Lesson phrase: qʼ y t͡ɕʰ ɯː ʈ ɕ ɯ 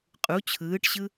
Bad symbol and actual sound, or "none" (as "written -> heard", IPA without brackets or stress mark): y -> u